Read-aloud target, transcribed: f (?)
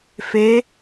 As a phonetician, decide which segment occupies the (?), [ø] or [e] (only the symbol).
e